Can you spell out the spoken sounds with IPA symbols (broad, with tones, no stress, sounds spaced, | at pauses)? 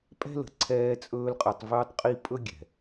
pʼ ɛ̤˦ l ə̤˨ ǀʰ ɛː˧ t͡sʼ ɵː˧ l qʼ ɯ˨ tˤ v ɵː˧ tˤ qʼ i˧ pʼ ɵ˦ ɡʲ ɛ̤˨